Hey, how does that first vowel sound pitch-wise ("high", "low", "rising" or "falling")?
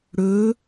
rising